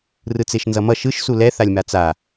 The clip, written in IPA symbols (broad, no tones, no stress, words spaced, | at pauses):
rɯt͡seʃnzʌmʌ ʃɯʃ sulɛ θalʲmat͡sa